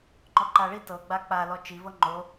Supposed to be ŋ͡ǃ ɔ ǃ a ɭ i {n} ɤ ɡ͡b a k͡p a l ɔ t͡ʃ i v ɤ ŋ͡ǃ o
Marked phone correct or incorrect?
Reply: incorrect